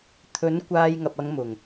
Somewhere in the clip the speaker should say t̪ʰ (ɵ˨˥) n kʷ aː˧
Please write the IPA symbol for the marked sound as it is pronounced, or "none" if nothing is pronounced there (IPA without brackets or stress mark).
ɵ˨˥